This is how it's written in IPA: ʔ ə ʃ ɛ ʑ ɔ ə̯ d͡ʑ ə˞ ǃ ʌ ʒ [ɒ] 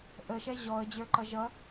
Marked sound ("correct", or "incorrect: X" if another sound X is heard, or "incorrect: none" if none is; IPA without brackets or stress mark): incorrect: ʌ